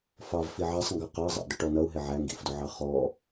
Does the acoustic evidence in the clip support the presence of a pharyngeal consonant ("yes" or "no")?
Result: yes